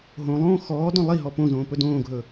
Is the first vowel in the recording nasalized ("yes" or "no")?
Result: yes